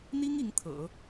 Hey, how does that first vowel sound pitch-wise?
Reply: high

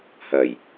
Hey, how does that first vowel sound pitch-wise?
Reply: low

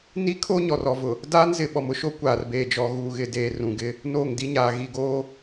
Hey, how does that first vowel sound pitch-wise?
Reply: high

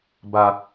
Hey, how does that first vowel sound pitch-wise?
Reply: low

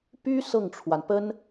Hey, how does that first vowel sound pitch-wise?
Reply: high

